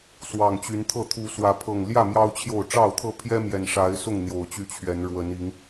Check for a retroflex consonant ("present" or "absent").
present